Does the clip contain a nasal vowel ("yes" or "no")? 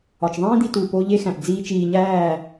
yes